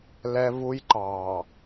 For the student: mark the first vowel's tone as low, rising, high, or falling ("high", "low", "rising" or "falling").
high